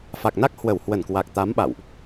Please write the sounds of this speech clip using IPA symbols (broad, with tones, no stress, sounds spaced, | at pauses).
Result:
f a˨˩ k̚ n a˦˥ k̚ h w ə˧˩ w h w ə˧˩ n k w a˨˩ k̚ t̪ a˨˦ m ɓ a̰˧˨ w ʔ